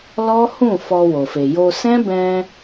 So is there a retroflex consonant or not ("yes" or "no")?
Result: no